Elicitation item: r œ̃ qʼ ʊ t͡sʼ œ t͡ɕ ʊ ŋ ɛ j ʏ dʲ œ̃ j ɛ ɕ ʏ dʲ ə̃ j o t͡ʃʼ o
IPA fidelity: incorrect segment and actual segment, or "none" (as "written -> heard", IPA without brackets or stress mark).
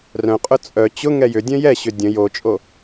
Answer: none